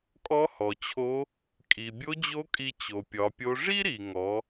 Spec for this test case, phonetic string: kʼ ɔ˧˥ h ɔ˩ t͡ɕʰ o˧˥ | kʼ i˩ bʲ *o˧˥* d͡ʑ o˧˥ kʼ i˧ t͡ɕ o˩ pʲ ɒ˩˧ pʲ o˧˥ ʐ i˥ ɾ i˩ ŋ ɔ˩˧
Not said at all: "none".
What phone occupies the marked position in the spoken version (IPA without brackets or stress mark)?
o˧˥